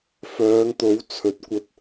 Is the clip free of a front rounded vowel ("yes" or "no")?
no